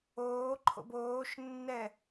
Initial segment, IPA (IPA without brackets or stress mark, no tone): oː